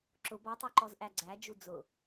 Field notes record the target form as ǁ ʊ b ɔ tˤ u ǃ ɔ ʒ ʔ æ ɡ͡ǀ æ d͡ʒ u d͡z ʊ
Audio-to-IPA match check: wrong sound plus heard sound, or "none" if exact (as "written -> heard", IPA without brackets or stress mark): ʒ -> z